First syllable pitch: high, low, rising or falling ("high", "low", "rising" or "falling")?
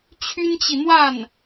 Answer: high